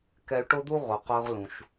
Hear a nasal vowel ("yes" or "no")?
yes